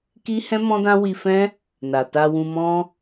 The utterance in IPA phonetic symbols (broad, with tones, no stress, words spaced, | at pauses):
ki˦hɛ̃˦mɔ̃˦dã˦ wi˧fɛ̃˦ | na˨ta˧wũ˧mɔ̃˦